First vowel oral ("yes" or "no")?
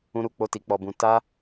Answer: no